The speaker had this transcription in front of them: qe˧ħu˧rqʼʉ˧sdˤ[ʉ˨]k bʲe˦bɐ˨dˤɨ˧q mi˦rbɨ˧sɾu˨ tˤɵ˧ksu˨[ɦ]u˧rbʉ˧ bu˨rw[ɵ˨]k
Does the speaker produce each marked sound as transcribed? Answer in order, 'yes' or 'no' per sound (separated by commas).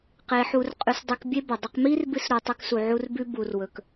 no, no, yes